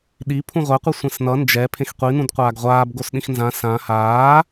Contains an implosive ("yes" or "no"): yes